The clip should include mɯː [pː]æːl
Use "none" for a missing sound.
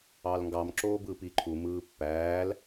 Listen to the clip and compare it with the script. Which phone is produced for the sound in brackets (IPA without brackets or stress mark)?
pː